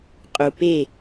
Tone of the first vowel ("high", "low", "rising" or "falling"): low